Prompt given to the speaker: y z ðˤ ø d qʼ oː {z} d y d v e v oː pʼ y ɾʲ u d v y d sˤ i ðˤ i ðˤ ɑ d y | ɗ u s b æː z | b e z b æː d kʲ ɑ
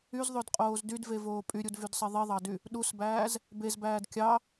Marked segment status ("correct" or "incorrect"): correct